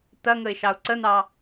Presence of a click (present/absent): present